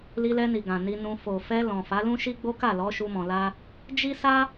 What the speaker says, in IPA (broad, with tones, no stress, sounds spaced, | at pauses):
l i˧ l ɛ˧ n i˨ ɡ ã˨ n i˧ n ũ˧ f o˨ f ɛ˧ l ɔ̃˨ f a˨˦ l ũ˦ ʃ i˦ ɡ͡b o˦ k a˦˨ l ɔ˨˦ ʃ u˧ m ɔ̃˨ l a˧ | d͡ʒ i˦ s a˦